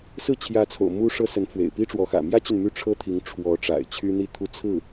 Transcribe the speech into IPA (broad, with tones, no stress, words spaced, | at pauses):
sɹ̩˥˩t͡ɕʰjä˧˥t͡sʰo̰˨˩ʊ̯ mu˥ʂɤ˥sə˧˥n fwḛ˨˩ɪ̯pi˥ʈ͡ʂwɔ˧˥xä̰˨˩ mjä˥t͡ɕy˨n my˥˩ʈ͡ʂʰɤ˥t̪ʰi˧˥ŋ ʈ͡ʂʰwɔ˧˥ ʈ͡ʂa̰˨˩ɪ̯t͡ɕʰy˥n̪i˥˩ t̪ʰu˥t͡sʰɹ̩˥˩